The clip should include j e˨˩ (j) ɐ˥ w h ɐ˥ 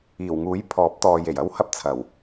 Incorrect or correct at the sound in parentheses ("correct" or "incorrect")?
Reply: correct